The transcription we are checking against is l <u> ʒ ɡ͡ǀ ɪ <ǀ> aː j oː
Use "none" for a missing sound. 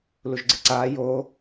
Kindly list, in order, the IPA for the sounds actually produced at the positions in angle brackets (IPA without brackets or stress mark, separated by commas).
u, ǀ